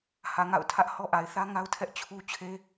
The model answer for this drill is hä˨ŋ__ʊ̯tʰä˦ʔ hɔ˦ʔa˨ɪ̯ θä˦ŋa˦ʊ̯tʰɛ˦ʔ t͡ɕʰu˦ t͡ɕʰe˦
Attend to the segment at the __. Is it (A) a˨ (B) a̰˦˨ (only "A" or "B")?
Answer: B